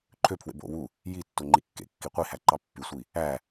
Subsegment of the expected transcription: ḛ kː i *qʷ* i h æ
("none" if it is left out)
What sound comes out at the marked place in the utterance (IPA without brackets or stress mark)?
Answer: qʷ